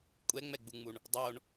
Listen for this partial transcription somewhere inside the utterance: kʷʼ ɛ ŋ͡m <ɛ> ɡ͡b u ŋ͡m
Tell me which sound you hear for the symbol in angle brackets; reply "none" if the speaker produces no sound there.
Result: ɛ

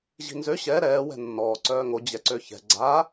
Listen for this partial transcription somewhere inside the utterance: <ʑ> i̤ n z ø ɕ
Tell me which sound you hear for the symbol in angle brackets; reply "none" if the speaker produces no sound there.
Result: ʑ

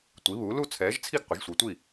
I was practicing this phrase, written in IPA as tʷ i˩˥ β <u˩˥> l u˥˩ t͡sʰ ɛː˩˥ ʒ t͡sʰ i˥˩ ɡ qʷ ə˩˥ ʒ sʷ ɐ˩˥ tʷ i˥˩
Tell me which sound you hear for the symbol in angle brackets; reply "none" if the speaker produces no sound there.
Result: u˩˥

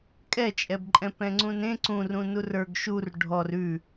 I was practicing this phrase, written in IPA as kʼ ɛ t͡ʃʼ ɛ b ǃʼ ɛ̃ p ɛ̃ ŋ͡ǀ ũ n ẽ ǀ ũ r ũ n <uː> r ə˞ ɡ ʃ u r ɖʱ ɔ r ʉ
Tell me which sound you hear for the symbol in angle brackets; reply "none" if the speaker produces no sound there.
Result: u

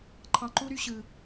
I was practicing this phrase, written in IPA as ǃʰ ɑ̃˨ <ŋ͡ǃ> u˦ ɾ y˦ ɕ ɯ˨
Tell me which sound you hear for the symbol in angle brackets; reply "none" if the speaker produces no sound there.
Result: ǃ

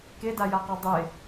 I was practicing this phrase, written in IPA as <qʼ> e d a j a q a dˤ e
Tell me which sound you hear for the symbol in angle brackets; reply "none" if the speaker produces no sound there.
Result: k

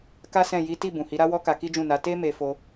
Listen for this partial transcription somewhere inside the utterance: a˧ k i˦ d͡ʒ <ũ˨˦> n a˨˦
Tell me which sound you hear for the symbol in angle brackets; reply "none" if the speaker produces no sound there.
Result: ũ˦˨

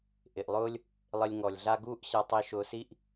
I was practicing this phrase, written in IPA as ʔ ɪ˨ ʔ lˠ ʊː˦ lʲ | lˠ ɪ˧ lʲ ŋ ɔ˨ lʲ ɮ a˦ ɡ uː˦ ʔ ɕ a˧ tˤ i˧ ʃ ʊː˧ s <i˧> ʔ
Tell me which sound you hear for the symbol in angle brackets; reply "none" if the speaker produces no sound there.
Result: i˦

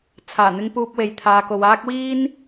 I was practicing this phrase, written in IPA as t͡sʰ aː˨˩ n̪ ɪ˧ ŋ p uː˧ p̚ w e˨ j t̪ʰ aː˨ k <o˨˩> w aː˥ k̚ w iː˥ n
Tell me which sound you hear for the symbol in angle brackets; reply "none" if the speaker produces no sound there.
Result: o˨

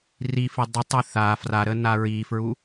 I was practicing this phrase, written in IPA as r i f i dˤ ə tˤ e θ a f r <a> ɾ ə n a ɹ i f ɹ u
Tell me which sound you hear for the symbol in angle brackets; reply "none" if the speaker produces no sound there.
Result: a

